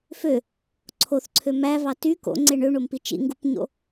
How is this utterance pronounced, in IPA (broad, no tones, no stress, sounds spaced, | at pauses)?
f ø | ǀʰ o θ ǀʰ ø m æ v ɑ t y k o̰ ŋ͡ǀ e ɳ ø ɳ o m p i t͡ʃ ḭ ŋ ɡ u p ɲ o̰